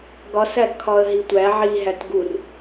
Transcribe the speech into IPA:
ɡɒsæɡkʰɒə̯ɦi tʷæ ʕiɦæt ɡur

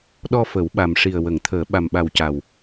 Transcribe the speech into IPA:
ɗɔ˧fə˨˩˦wɓa˨˩mʂi˨˩ə̯ wə˨˩˨ŋt̪ʰəː˨˩˦ ɓa˨˩mɓa˨˩wca˨˩w

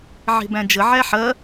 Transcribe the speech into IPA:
ʕe̤bæ̃d͡ʒə ʕæħɐ

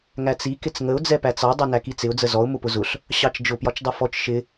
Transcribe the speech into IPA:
ŋæt͡si kɪt͡sŋəʊ̯ d͡zɛpæt͡sɑ dˤɜnækit͡sɪʊ̯ d͡zəzɔʊ̯ mʊpʊzʊɬ | ɕɑt͡ʃd͡ʒʊ pjɒt͡ʃdˤʌfɔt͡ʃ ʃɪ

